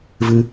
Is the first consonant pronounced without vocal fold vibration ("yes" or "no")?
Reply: no